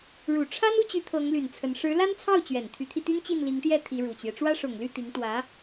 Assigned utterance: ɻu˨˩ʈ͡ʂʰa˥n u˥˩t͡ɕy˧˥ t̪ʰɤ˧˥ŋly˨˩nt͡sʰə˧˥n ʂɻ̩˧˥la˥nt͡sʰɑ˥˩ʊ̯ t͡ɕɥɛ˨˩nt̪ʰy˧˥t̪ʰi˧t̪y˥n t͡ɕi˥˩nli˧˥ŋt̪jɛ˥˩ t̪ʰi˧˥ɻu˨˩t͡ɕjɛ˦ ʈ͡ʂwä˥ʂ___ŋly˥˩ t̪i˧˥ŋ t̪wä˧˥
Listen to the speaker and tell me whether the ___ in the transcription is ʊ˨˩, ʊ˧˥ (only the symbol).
ʊ˨˩